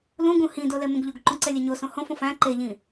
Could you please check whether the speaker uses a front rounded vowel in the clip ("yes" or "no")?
no